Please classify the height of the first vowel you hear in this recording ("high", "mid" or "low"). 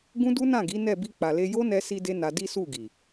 high